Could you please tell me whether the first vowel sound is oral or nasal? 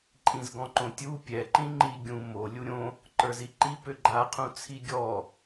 nasal